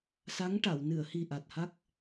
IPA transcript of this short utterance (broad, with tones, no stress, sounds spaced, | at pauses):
s a˧˥ ŋ ʈ a˨˩˨ w n ɨ˨˩˨ ə̯ h i˨˩ ʔ a˨˩ t̚ h a˦˥ k̚